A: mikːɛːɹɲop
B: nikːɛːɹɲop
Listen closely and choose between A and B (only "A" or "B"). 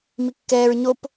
A